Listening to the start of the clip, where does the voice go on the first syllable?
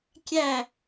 falling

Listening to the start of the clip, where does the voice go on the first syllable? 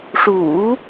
low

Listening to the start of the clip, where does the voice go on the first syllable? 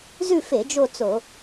falling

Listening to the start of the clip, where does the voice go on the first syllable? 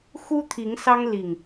high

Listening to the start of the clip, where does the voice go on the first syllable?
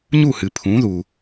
falling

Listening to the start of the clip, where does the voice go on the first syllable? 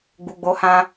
low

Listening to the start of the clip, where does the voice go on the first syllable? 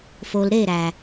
low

